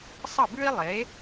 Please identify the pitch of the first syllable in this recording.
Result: falling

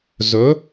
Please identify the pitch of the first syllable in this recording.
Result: rising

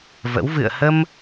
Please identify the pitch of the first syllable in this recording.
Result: rising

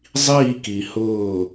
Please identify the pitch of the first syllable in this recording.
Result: falling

